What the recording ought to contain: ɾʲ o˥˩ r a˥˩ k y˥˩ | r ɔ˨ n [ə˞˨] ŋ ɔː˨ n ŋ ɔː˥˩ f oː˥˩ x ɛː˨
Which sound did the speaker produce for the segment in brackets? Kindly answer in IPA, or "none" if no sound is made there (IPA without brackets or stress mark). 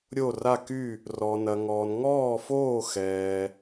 ɐ˨